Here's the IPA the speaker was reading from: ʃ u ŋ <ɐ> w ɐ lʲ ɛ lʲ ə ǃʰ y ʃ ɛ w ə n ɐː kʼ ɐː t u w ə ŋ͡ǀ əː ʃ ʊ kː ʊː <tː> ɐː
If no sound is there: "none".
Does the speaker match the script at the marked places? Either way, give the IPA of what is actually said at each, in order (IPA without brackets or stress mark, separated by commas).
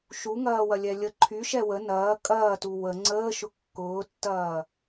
ɐː, tː